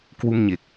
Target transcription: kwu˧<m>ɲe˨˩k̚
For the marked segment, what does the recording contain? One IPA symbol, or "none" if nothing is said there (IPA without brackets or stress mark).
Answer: m